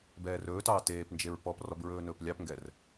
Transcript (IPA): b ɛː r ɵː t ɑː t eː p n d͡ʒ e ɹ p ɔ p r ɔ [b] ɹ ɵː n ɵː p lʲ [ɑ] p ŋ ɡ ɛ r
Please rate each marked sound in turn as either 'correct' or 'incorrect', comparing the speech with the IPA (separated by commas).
correct, correct